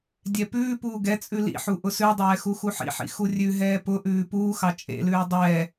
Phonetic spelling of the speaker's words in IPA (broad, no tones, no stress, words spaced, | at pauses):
dʲɛpʉːpuː ɡɛ t͡sʼʉlḭħu ʔʊsʉdˤɛː xuxuħḭħḭ xurʲʉɦɛː pʊʔʉː puːxɑ t͡ʃʼḛlʉː dˤɛː